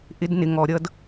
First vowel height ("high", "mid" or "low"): high